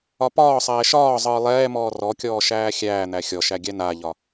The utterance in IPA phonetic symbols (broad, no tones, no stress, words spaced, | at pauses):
ɒpɒːsˤɛː ʃɒː zˤɯːlˠɛːmɔː rɔkʲɔː ʃæːxʲæːn̪æ xʲɔʃæ ɡʲænaʎɒ